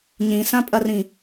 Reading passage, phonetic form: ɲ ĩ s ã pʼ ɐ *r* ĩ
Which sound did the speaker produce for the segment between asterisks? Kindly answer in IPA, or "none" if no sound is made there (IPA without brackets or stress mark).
r